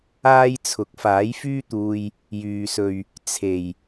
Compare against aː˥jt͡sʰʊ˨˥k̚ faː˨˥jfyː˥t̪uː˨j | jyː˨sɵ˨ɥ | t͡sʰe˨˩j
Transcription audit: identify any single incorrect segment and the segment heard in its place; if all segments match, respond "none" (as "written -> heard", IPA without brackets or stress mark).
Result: none